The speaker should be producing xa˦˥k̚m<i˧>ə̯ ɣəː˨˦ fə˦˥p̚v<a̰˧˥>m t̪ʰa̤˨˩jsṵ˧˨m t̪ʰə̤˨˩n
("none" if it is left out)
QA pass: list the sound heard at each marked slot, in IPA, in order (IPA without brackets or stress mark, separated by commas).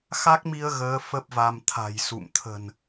i˧, a˧